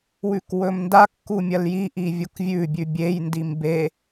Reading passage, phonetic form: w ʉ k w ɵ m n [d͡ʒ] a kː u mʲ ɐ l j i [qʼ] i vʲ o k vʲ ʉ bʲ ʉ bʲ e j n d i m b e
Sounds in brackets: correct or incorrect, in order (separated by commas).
incorrect, incorrect